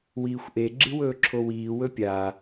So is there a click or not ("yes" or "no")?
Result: yes